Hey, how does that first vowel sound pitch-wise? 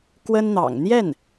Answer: high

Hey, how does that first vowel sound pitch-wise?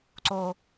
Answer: low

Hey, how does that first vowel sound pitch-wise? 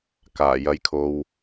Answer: low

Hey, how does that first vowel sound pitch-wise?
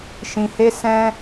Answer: low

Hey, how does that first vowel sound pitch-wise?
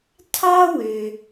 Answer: high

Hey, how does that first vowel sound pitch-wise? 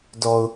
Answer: low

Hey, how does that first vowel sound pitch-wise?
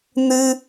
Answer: high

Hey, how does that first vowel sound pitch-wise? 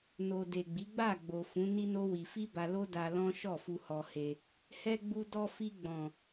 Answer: low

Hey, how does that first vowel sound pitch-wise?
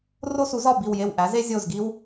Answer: high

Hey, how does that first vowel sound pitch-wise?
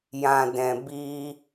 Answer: low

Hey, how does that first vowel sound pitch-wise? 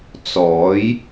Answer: rising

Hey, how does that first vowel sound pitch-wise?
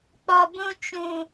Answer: low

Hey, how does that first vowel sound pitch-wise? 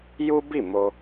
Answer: high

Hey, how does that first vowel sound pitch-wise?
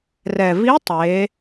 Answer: low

